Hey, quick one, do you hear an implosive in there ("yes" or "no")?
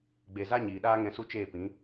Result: yes